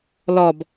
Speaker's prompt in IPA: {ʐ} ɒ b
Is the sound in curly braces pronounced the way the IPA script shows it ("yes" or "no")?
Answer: no